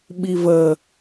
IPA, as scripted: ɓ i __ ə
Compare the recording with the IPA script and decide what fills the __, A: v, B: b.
A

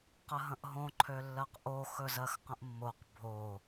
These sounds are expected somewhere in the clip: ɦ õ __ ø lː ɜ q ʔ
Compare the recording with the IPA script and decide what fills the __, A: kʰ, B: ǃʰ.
B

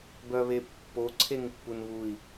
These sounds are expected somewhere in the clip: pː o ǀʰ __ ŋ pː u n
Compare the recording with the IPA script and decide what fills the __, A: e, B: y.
A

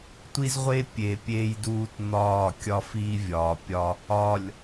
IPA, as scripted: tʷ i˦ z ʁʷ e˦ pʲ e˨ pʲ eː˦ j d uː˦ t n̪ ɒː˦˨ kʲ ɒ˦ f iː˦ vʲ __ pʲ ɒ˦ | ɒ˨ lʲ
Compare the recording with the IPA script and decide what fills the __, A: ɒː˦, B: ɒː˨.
B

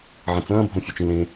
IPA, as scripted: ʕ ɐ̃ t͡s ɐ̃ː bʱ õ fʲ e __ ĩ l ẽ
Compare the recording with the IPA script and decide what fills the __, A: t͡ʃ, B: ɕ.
A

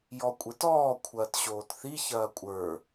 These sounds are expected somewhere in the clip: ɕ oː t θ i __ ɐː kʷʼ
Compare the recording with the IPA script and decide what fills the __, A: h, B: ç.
B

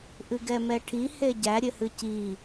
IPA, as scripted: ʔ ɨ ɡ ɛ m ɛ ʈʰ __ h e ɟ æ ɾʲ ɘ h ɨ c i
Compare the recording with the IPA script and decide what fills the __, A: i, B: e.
A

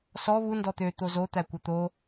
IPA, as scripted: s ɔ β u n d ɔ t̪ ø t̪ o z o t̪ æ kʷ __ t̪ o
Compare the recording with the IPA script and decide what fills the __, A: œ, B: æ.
A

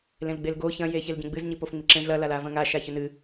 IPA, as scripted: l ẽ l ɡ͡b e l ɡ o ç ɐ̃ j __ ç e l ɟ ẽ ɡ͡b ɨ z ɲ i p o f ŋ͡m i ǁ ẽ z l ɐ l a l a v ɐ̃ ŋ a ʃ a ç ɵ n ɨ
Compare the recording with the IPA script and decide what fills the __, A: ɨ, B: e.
B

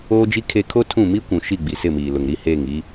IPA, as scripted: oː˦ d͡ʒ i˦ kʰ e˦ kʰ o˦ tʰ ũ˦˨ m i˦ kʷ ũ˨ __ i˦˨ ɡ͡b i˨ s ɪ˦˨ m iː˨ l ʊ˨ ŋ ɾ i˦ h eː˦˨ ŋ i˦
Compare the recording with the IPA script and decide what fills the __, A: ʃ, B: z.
A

